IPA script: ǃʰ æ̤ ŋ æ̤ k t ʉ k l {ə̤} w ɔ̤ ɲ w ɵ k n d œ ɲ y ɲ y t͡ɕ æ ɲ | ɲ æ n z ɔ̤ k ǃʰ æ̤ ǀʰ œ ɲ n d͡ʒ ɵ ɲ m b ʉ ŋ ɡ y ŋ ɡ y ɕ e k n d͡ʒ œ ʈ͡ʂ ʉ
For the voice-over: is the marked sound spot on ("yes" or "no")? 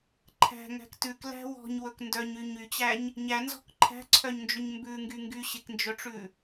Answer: no